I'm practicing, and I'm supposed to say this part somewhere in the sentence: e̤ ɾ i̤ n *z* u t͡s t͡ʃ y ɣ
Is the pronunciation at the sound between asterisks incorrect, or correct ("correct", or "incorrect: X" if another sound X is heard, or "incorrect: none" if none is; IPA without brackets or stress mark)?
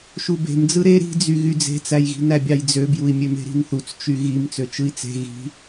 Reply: incorrect: θ